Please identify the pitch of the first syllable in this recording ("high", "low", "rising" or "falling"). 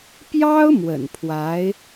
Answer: high